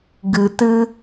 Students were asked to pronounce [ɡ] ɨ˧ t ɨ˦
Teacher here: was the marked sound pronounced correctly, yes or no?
yes